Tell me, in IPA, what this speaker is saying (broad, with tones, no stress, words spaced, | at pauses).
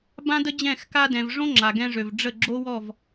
bã˦də˦d͡ʑɛ̃˦˨x ka˧dɛ̃˨v ʐõ˦ ŋ͡ǁa˨ɡɛ̃˧ʐø˨v ɖ͡ʐə˦˨ ɡ͡ǁo˦wɔ˦˨v